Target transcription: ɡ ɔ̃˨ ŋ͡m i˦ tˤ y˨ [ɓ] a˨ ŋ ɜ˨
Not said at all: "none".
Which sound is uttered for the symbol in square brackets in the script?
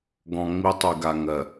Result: ɡ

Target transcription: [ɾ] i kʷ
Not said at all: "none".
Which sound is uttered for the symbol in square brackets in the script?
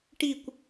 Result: ʈ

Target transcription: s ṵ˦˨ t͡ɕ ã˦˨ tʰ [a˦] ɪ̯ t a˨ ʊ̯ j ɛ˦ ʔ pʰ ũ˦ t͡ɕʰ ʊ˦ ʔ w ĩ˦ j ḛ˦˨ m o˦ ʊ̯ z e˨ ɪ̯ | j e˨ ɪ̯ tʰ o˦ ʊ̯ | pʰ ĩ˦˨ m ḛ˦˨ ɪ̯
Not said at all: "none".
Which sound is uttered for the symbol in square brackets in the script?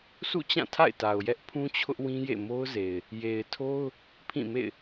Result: a̰˦˨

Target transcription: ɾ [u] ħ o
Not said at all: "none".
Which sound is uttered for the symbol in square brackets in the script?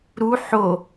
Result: u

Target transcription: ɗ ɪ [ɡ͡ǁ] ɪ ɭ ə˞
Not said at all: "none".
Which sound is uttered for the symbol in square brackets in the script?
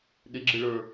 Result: ɡ͡ǁ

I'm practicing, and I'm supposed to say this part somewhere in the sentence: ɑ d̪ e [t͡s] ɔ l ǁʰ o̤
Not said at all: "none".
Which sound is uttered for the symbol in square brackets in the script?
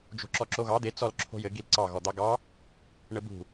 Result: t͡s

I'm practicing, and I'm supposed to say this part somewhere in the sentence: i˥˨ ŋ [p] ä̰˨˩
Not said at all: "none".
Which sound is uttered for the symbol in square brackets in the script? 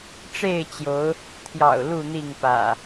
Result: p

